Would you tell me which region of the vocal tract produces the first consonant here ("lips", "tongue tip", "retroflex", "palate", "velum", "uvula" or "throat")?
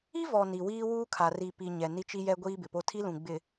lips